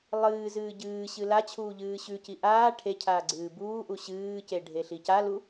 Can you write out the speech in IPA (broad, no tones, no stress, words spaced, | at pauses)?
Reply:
lˠɨː zɨːɟɨːɕɨ lat͡ɕʰuː ʎɨːɕʉci ʔaː ʈʰecʰaː ɡ͡ǀɨːbuːʔu ɕɨːce ɖʱeɬicalu